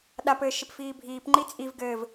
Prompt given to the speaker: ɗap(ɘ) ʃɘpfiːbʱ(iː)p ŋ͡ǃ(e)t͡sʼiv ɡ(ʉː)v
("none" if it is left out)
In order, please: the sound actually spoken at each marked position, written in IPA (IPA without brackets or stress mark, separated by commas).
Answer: ɘː, iː, i, ɘː